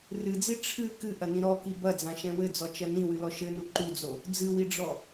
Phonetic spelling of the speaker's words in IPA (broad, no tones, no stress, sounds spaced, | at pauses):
r ɨ d͡z i ʈ͡ʂʰ ɨ k ɨ ʔ ɐ n ĩ ɾ ɔ k i b ɐ d͡z ã ʃ ɛ̃ w ɘ d͡z ɔ t͡ʃ ɐ n ĩ w ɨ l ɔ ʃ ɘ n u ǃ u d͡z o | d͡z ɨ w i ɖ͡ʐ ɔ